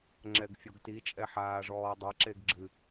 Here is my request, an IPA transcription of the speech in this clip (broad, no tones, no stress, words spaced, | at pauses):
ŋ͡ǁɛɡfʲoɡti t͡ʃʼɛħaːʐɔːdˤa ǁeɡɡ͡ǁɨ